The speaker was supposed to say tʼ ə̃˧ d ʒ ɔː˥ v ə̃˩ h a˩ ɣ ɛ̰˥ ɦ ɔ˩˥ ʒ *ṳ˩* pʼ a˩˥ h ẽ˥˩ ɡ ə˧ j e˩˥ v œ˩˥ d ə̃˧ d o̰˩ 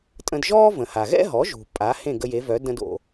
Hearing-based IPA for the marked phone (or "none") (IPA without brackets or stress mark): ṳ˩